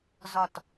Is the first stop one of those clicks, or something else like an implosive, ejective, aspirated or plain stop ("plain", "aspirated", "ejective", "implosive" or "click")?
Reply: plain